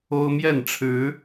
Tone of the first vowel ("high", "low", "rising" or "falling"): high